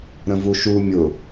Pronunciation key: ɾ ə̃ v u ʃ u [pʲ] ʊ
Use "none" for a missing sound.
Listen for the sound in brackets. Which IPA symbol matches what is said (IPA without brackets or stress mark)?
mʲ